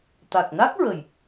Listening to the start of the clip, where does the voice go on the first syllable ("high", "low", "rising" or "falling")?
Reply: low